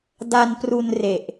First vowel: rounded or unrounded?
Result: unrounded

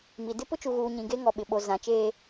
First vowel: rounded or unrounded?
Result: unrounded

